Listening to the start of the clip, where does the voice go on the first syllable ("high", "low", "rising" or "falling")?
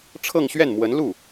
falling